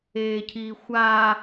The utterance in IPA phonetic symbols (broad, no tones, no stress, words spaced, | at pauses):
eːcʰiːxʷa